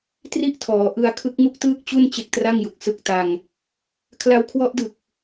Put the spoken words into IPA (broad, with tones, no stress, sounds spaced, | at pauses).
t r i˥˩ ʔ tʰ ɔː˩˦ ʔ ɯ˧ a̯ kʰ ɯ˦˥ k̚ ŋ u˥˩ k̚ t ɯː˥˩ k̚ t͡ɕ u˥˩ n t͡ɕ e˦˥ k̚ t r a˥˩ ŋ j u˨˩ k̚ s ɯ˦˥ k̚ t a˧ ŋ | kʰ l a˧ w kʰ w ɔ˦˥ ʔ d ɯ˨˩ k̚